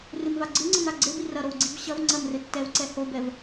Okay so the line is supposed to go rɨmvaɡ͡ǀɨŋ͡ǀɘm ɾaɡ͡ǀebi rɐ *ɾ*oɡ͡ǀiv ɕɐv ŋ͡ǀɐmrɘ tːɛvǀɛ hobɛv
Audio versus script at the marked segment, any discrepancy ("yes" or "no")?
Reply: no